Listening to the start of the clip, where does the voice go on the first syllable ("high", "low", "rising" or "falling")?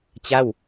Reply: falling